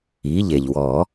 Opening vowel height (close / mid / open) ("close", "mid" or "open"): close